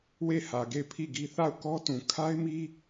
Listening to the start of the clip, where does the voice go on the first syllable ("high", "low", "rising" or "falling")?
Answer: falling